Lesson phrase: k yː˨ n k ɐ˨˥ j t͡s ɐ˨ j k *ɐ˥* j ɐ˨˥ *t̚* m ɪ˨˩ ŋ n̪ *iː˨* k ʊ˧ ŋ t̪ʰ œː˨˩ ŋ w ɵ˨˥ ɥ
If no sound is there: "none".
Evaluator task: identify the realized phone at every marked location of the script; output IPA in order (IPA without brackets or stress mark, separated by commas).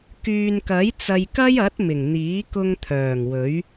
ɐ˥, t̚, iː˨˥